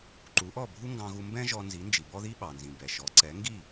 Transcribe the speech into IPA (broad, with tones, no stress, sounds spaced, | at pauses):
ǃ u˩˥ ʔ ɔ˥˩ bʱ u˥ ŋ ɡ ɑ̃˧ ɣ u˧ m b ɛ̃˥ ʒ ɔ˧ n z i˩˥ n d͡ʒ i˩ b ɔ˥ ð i˥ ɓ ɑ˩ n z ĩ˩ b ɛ˩ ʃ ɔ˩˥ ǀ ɛ˩˥ ŋ ɡ i˥˩